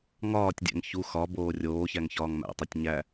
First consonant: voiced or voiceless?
voiced